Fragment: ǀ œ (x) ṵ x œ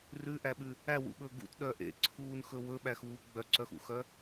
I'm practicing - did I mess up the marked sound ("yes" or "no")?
no